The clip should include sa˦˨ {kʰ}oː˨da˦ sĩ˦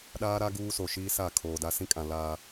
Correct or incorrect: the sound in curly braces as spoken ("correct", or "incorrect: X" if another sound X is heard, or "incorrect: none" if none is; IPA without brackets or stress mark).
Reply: correct